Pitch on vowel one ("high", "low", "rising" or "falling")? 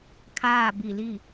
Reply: falling